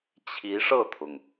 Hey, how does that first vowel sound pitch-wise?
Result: rising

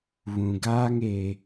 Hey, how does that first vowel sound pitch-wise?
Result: low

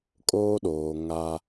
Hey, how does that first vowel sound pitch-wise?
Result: high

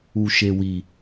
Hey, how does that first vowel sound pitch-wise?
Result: low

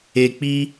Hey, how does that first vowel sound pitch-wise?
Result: low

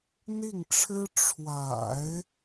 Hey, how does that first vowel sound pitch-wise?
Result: falling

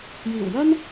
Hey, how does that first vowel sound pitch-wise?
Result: low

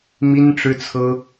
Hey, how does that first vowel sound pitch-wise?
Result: high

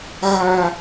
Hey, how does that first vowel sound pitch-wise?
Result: high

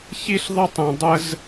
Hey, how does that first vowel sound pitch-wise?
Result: high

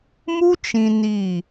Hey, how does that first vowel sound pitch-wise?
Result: high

